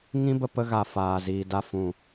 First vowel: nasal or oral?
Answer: nasal